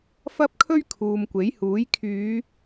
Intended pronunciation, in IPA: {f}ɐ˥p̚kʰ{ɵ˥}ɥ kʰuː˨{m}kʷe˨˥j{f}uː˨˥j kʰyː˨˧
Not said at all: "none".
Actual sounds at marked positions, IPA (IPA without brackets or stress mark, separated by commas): f, ɵ˥, m, h